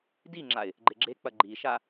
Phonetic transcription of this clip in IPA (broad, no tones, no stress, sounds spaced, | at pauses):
d i ŋ͡ǁ a ɪ̯ | ɡ͡ǃ e ɡ͡ǁ e k͡p ɐ ɡ͡ǃ i ʃ a